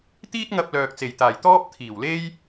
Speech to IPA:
t̪iː˥t̚ŋɐ˧p̚ lœː˨k̚t͡se˨˩jt̪aː˨˩j t̪ɔː˥p̚ t̪ʰiː˨˩wle˥j

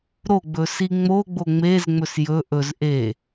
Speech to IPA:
ɾoɡ͡bɵsi ŋ͡moɡ͡bo ŋ͡mezŋ͡mɵs jɵ ʔɵz ʔe

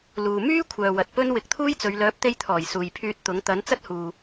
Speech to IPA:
luː˨ myː˥ kʷʰœː˨wɐ˨t̚pɵ˥n wɪ˨˥k̚t̪ʰuː˥jt͡sɵ˨˧ɥ lœː˨˥p̚t̪e˧jt̪ʰɔː˨˩j suː˨jpʰyː˧t̚ t̪ʊ˨˥ŋ t̪ɐ˨˥nt͡sɐ˥t̚huː˨

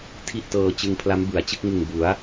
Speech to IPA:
tʰi˥˩ʔtɤː˧ t͡ɕɯ˧ŋpʰla˦˥mbɯ˩˦a̯t͡ɕɯ˥˩k̚ ŋɯ˨˩ŋbu˩˦a̯

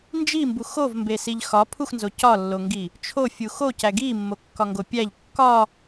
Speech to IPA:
nd͡ʒimbux ovmbesiʎ xɒ pʰuxnzo cɒlːoŋɡi | t͡ʃʰofʲu xocæ ɡimːokːɒŋɡo pʲæʎ kːɒ

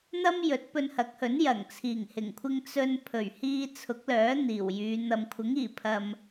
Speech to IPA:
n̪ɐ˥m jɵ˨˥t̚pɵ˧nhɐ˨˥k̚hɵ˨˥n jɐ˨˩ŋ t͡sʰiː˨˩ŋhɪ˨˩ŋkʷʰɪ˧ŋ t͡sɵ˧n pʰɵ˨˩ɥhiː˧ t͡sʰʊ˨˥k̚lœː˨˥ n̪iː˨˩wjyː˨˧ n̪ɐ˨mkʷʰɪ˨˥ŋiː˨˩ pʰɐ˧m

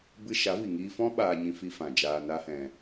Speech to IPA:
bɨ˧ ʃa˨˦vi˨ŋiː˧fɔ̃˦ ɓaː˧ɲĩ˧fi˧ fã˨ d͡ʒaː˧ na˦hɛ̃˧

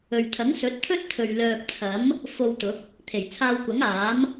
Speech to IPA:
ɵ˨ɥt̪ʰɐ˨˥ŋsɵ˨˥t̚ t̪ʰɵ˥t̚t̪ʰɵ˨ɥ lœː˨p̚t͡sʰɐ˨˥m | fo˧wt̪ʊ˨˥k̚ | t̪ʰe˨˩jt͡sʰaː˧wkʷɐ˨˥ŋ aː˨˥m

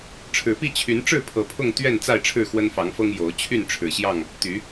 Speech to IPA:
ʈ͡ʂʰɻ̩˨˩pi˥˨ t͡ɕʰy˨˦n ʈ͡ʂɻ̩˥˨ pʰɤ˨˩pʰʊ˥˨ŋ t̪ɥɛ˥˨n t͡sa˥˨ɪ̯ʈ͡ʂʰɻ̩˥˨xwə˦n fɑ˨˦ŋfɤ˦ŋ jo˨˦ʊ̯ t͡ɕʰy˥˨nʈ͡ʂʰɻ̩˨˩ɕjɑ˥˨ŋ | t̪y˨˦

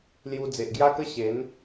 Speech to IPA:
lju˧ d͡ze˨ʔɡja˦kə˦ ɕe˨˦n

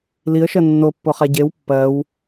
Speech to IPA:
liə̯ʃɜ nːopːoχa ɟew pːɜw

